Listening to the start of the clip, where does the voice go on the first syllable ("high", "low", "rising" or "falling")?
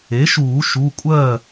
rising